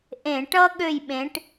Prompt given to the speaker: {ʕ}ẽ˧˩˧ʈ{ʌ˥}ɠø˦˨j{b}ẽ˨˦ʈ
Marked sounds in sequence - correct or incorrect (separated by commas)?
incorrect, correct, incorrect